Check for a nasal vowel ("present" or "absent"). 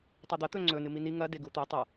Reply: absent